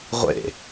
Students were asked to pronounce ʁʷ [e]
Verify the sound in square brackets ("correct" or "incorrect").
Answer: incorrect